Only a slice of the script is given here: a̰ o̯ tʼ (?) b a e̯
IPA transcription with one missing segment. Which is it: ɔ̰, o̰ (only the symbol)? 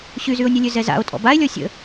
ɔ̰